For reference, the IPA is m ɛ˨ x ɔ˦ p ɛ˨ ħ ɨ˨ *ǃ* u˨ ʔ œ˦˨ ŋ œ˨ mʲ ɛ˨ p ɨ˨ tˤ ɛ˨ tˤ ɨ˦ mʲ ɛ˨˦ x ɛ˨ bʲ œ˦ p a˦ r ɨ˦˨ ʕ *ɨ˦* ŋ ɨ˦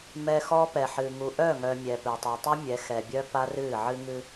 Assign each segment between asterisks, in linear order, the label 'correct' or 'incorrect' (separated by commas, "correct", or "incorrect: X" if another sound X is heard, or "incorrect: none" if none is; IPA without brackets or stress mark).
incorrect: ŋ, correct